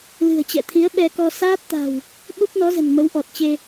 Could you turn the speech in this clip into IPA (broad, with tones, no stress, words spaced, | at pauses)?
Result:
lɨ̤˨˩ə̯t͡ɕɛ̰˧˨t̪ʰi˨˦ə̯ ɓɛ˧kɔ˧ saː˦˥t̚t̪a̤˨˩w | ɓu˦˥p̚nɔ˨˦zə̤˨˩n mə˨˦wʔɔ˨˩t̚t͡ɕe˧